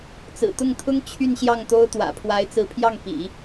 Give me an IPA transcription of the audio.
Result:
t͡sɹ̩˨˩t̪ʊ˥˩ŋt̪ʰʊ˥ŋ t͡ɕʰy˥˧nɕjɑ˥˩ŋt̪o˥ʊ̯ t̪wä̰˨˩pʰwa˧˥ɪ̯t͡sɹ̩˧˥pʰjɑ˥˩ŋ pḭ˨˩˦

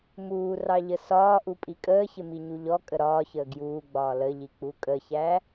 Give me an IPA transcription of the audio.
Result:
muːrɑʎə sɒːʔupʼi kʼəːçɪmiɲu ʎɔkʼə ɾɒːçəː ɡjuːɡ͡bɒː ləʎik͡pu kʼəçæ

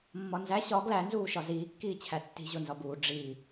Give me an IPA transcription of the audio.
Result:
mːɒnzæ ɕɒ ɡlænzuːʃɒ ziːkːiːt͡ɕʰæ tːi̤ ʑonzɒbuː ɖ͡ʐi

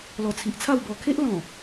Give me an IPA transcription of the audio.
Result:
lɔ˨˩t͡sʰi˨ʔt͡sʰa˥˧w bɔ˨˩kʰe˦ʔlɔ̃˨˩

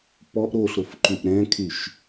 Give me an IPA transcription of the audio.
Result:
pɔʔ ɾoɬɾofǃyʔ ɾɛ̃kʰyʃ

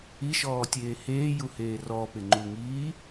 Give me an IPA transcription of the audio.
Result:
iʃɔːtʲeː heːjuheː rɔpɪŋ͡ǃuŋiː

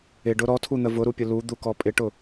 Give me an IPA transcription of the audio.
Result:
ɪɖʊ ɾɔtʰun̪ə vʊɾupʲʊ lud̪ukɔ pʼɪʈʊ

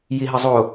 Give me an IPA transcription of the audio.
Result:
jiɦəzˤo

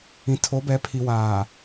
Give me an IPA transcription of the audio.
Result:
ĩ˨tʰo˨˦bɛ˨˦ pʰi˨waː˨

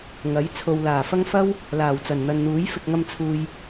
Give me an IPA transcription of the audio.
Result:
ŋɐ˨˥j t͡sʰo˨wlaː˨˩fɐ˥ŋ fɐ˥w | laː˨˩wt͡sɐ˨˩nn̪ɐ˨nn̪uː˨˥j fɪ˨k̚ŋɐ˧m t͡sʰuː˨j

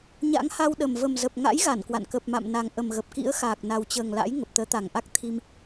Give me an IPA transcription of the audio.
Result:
ɲa̰˧˥ŋha˧wɗə˨˩m və˨˩mzə˨˩p̚ŋa̰˧˥j ɣa˧˩nkwa̰˧˨n kə˨˩p̚ma̰˧˨mna˨˩ŋ ʔə˨˩mɣə˨˩p̚kḭ˧˥ə̯xaː˨˩k̚ na˨˩wt͡ɕəː˨˩ŋla̰˧˥j ŋə˨˩p̚t̪əː˨˦t̪a˨˩ŋʔa˦˥k̚ t̪ʰi˧m

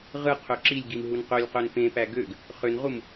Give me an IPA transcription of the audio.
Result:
ʁɯ qʰøǁilʲɡim ɦunqølʲqøn pẽpæ ɡøɡ | χønʁum

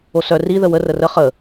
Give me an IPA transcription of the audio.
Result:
osœ ri ðəwə rərə χə

